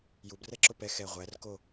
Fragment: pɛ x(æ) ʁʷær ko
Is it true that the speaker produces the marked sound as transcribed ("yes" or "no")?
no